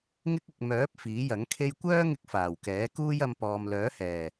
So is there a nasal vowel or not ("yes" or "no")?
no